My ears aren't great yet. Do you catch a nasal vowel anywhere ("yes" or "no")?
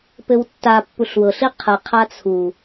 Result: no